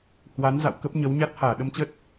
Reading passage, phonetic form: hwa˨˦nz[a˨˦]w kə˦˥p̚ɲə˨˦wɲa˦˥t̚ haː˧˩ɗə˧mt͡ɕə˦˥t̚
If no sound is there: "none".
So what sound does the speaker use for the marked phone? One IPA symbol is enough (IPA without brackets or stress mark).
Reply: a̰˧˨